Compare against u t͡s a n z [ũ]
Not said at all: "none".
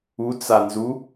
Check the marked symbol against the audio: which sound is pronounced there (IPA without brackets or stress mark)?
u